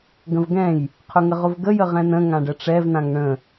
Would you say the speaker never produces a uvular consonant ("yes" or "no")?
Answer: no